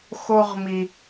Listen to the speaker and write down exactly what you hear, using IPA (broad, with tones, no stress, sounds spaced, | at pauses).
x o˥ ʁ m i˦